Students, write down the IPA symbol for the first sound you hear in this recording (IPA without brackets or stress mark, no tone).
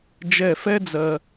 d͡ʒ